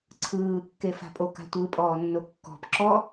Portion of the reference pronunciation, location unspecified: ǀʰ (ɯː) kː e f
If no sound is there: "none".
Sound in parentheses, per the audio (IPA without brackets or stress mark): ɯː